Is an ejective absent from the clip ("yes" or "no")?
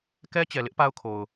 yes